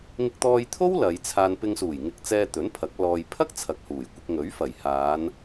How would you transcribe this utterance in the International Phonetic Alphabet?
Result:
ŋ ɪ˧ k̚ t̪ ɔː˧ j t̪ʰ o˥ w l ɐ˨˧ j t͡sʰ aː˧ n p ɪ˧ ŋ s uː˨˩ j ŋ ɪ˧ k̚ t͡s ɛː˧ t̪ ɵ˨˥ n pʰ ɐ˨˥ k̚ l ɔː˧ j pʰ ɐ˥ k̚ t͡sʰ ɐ˨ k̚ h uː˨˩ j kʷ ɪ˧ k̚ ŋ ɵ˨˥ ɥ f ɐ˨˩ j h aː˨˧ n

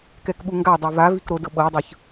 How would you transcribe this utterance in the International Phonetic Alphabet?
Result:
k ɛ k ɓ u ŋ ɡ a dˤ o v a v i k ɾ o d ɤ ɓ ɤ dˤ ɯ ç

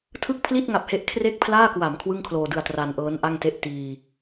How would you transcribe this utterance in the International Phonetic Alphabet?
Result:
tʰ ɯ˥˩ k̚ pʰ l i˥˩ t̚ ŋ a˨˩ p̚ h e˦˥ ʔ kʰ r e˥˩ k̚ pʰ l aː˥˩ k w a˩˦ m kʰ w ɯ˥˩ ŋ kʰ l oː˧ d ɯ˧ a̯ t r a˧ n ʔ ɤː˦˥ n ʔ a˥˩ ŋ t e˥˩ ʔ t iː˧

